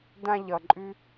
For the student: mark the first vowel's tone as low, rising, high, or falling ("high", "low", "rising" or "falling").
high